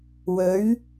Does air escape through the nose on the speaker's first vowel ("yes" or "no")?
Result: no